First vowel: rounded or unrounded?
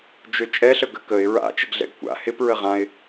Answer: rounded